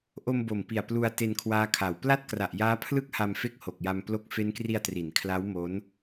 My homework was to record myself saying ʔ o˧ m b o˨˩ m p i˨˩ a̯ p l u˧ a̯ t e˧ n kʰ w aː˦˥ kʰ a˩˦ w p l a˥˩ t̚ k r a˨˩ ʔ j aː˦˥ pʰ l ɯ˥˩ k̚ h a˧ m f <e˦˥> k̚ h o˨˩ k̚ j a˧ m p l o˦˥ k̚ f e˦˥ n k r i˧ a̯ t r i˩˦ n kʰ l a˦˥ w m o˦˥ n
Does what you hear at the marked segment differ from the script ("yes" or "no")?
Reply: yes